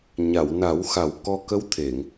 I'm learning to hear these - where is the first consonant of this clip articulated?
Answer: palate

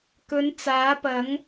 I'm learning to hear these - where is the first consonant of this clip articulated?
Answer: velum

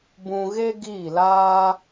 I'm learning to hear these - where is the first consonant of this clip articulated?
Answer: lips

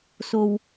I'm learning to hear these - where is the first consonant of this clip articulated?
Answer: tongue tip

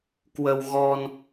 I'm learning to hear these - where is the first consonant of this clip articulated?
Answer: velum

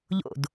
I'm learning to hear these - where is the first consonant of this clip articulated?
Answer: palate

